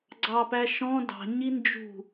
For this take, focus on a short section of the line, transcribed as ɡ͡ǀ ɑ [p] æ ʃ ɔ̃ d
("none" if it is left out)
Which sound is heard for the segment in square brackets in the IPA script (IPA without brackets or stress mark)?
p